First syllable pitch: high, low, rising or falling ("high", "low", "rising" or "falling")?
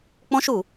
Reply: high